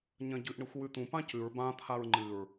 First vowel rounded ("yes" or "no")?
no